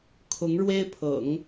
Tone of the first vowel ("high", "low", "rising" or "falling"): rising